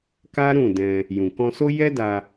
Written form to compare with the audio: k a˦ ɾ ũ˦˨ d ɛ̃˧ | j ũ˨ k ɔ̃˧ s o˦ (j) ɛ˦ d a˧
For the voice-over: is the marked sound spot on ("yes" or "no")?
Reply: yes